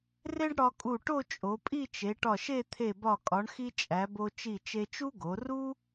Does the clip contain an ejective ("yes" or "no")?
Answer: yes